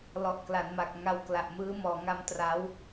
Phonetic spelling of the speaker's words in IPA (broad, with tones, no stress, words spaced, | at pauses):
lɔ˨˩ʔkla˩˦nma˨˩k̚ ŋa˧wkla˨˩ʔmɯː˦˥ mɔː˩˦ŋa˦˥mtra˦˥w